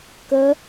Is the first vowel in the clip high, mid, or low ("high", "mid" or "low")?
mid